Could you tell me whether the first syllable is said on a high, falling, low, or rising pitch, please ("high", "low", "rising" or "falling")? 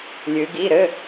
rising